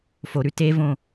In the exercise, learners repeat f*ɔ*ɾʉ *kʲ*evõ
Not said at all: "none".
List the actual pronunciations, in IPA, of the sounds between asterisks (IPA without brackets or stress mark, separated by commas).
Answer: o, t